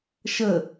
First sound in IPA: ʃ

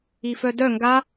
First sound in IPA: i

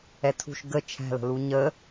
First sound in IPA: ɛ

